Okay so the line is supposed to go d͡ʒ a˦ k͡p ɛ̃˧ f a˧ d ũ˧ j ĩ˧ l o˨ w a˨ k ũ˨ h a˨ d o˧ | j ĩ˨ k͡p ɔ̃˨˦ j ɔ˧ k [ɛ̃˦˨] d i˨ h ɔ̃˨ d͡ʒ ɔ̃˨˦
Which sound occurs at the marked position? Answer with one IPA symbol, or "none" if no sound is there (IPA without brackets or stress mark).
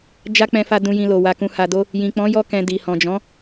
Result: ɛ̃˨